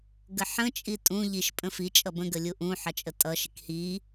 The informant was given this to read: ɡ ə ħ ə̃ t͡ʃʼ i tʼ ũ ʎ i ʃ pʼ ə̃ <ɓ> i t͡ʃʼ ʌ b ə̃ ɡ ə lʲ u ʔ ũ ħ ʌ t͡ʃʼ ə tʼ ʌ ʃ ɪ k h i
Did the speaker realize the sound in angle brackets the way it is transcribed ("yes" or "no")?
no